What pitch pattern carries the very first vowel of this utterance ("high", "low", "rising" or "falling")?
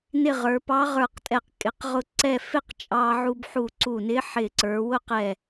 falling